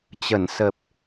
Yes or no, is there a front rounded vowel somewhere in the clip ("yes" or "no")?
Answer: no